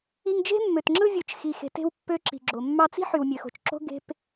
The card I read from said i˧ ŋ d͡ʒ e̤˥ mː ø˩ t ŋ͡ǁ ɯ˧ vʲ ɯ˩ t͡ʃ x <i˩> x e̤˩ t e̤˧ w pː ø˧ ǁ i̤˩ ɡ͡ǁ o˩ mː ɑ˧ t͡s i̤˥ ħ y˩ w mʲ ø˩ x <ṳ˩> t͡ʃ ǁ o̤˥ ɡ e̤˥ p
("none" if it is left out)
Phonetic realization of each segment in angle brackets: i˩, o̤˩

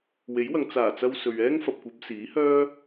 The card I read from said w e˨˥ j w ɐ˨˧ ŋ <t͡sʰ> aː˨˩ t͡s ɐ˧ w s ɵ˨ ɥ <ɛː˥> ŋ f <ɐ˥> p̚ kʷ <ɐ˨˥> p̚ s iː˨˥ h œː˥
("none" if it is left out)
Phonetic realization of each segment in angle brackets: t͡s, ɛː˥, ɐ˨, ɐ˨˥

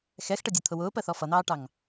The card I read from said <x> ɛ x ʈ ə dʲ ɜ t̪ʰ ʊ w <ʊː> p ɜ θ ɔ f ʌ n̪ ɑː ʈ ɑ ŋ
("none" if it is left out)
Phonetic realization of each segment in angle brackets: x, ʊː

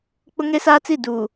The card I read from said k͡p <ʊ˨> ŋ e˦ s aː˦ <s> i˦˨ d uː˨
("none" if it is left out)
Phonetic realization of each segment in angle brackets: ʊ˦, t͡s

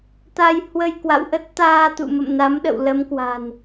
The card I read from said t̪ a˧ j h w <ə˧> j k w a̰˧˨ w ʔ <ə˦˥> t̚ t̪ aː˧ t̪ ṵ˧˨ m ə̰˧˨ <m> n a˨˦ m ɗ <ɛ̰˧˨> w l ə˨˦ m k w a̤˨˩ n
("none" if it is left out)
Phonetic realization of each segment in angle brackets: ə˧, ə˦˥, m, ə̰˧˨

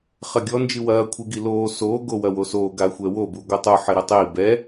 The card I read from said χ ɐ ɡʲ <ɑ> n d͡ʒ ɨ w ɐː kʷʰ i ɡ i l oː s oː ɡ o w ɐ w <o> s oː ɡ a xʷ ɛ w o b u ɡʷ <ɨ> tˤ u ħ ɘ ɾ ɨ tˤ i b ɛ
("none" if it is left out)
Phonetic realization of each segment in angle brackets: ɔ, o, ɨ

